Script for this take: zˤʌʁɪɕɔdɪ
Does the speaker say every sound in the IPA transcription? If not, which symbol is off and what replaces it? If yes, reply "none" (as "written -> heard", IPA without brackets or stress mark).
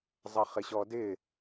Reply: ʁ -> χ